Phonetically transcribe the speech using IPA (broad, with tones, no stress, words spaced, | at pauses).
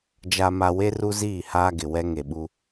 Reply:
d͡ʒa˨ma˨ we˦ru˦ziː˦˨ haː˦ɡɪ˨ wɛ˦ ŋe˨ɓu˦